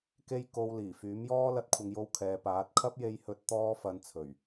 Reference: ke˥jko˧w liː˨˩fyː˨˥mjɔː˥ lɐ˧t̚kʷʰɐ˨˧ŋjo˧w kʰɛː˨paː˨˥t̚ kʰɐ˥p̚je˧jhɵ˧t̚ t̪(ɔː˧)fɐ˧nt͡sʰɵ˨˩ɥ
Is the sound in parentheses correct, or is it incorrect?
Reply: incorrect: ɔː˥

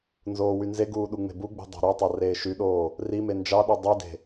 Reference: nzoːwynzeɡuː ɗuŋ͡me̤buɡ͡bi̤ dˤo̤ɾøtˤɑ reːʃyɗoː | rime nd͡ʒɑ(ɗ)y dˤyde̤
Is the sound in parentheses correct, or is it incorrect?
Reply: correct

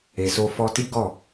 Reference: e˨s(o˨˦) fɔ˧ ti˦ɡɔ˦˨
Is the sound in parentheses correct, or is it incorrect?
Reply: incorrect: o˧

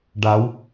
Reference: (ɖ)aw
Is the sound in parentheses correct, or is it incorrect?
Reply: correct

